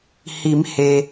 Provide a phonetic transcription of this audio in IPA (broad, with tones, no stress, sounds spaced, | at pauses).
h i˩˧ m h e˩